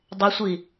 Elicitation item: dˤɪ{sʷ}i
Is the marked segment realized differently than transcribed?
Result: no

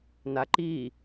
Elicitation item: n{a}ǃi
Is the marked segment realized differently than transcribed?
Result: no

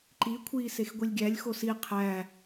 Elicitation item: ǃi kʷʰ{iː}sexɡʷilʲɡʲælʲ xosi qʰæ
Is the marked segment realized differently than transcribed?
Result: no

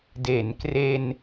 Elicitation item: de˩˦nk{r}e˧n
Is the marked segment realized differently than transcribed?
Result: no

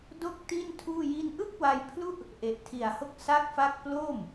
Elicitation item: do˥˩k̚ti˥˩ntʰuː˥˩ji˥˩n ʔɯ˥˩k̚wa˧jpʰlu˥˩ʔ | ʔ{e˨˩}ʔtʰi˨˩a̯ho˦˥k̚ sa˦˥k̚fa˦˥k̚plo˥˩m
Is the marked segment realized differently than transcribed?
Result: no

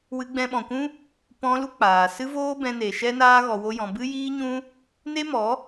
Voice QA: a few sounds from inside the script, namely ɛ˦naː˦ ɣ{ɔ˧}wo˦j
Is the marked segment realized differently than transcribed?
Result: no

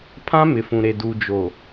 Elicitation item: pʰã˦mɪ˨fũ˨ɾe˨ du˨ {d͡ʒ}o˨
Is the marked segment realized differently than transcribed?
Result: no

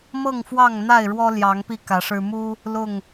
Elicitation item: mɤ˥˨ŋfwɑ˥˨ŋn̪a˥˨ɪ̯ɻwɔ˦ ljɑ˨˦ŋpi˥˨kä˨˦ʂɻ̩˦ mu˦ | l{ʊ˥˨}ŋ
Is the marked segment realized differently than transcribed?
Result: no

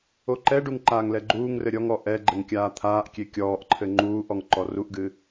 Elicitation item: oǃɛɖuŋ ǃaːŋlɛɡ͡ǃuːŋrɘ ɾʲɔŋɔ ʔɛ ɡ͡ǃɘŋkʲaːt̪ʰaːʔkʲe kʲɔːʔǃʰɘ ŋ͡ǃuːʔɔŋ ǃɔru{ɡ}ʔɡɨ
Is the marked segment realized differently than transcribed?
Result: yes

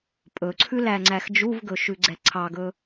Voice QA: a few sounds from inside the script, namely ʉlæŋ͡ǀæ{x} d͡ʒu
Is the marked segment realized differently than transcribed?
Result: no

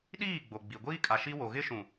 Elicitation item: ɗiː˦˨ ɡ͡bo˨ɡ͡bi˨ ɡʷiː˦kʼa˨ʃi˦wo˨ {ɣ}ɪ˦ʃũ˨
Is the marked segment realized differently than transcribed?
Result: no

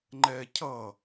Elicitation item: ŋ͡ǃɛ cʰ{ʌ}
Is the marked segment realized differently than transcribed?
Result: no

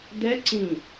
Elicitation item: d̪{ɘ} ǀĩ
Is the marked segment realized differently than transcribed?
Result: yes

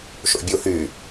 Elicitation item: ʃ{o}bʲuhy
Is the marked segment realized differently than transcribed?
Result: yes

